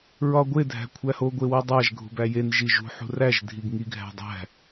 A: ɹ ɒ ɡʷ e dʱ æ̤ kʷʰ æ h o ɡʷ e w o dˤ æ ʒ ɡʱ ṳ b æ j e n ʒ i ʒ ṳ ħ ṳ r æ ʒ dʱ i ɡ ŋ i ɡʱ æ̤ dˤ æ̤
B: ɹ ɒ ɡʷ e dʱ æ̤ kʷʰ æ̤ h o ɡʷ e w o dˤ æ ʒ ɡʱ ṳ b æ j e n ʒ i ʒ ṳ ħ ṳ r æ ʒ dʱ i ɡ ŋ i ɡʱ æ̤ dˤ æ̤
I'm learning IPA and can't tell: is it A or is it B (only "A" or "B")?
A